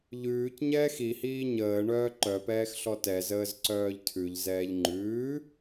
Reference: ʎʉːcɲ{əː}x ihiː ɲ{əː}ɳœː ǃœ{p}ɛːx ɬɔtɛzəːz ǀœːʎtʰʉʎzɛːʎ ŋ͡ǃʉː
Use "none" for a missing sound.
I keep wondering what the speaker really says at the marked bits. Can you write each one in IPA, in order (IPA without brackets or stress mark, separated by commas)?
ɛː, əː, p